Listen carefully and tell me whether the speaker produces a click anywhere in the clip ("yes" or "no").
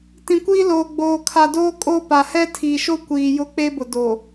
no